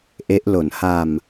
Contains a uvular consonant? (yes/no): no